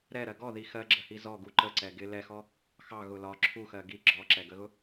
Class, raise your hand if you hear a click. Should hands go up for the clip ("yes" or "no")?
yes